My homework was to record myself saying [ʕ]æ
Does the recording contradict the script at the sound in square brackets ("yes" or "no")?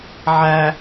no